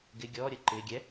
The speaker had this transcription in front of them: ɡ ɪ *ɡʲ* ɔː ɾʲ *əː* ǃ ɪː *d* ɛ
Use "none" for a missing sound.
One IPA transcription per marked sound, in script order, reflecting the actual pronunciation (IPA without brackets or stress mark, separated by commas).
ɡʲ, əː, ɡʲ